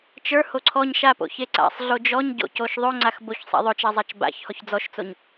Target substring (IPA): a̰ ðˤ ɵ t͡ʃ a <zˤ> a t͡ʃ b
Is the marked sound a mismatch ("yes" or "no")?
no